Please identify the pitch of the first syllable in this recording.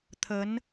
rising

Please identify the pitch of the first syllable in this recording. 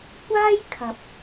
high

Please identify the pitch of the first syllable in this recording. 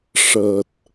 low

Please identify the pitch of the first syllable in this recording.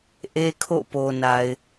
high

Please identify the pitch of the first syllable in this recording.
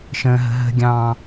high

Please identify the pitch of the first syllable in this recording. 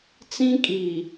high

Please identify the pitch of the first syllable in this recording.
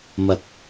low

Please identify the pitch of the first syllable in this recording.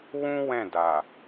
high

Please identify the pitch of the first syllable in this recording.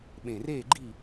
low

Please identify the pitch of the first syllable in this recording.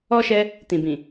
high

